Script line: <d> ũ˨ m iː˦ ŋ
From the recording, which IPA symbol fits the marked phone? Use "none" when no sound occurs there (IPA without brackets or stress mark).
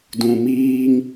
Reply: d